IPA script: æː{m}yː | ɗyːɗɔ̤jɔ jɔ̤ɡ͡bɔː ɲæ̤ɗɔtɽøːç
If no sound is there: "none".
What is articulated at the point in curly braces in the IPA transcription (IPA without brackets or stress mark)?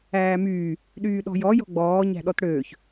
m